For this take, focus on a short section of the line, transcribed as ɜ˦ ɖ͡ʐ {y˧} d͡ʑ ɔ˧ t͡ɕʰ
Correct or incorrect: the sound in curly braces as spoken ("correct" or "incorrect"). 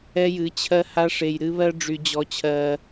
correct